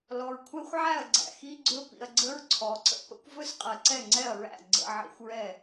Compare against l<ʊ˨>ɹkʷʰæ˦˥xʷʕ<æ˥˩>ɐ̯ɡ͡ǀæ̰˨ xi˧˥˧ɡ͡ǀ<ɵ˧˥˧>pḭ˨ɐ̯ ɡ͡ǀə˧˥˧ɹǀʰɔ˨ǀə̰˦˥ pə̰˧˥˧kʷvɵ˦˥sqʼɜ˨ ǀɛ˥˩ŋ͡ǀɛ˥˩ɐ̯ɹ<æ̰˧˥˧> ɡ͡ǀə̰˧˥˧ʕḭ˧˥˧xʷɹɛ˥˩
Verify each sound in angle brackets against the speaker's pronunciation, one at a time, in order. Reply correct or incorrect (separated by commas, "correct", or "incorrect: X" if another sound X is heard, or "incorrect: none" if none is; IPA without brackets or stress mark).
incorrect: ɔ˨, correct, correct, incorrect: æ̰˥˩